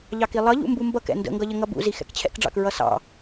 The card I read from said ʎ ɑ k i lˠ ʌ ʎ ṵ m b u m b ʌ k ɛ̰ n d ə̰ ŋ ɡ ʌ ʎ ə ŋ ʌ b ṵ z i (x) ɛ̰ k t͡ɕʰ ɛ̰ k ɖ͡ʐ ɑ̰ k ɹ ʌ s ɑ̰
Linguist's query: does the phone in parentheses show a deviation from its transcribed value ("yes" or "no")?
no